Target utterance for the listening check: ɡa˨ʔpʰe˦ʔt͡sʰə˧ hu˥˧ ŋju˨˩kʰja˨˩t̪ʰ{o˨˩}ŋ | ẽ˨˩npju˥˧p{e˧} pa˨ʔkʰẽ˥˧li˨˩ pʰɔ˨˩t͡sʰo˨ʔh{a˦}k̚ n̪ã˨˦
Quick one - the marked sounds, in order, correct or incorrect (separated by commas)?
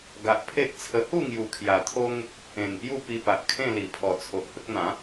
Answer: incorrect, incorrect, incorrect